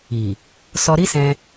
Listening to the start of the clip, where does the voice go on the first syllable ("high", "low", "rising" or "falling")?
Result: low